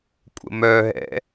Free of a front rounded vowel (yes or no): no